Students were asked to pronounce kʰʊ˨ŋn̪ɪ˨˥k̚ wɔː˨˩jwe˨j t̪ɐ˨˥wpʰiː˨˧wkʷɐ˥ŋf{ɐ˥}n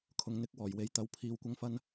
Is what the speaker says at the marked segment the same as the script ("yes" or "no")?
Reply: yes